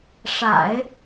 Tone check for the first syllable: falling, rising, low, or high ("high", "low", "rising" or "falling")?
low